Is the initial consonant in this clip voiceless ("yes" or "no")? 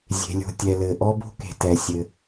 no